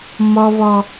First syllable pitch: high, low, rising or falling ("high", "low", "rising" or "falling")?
low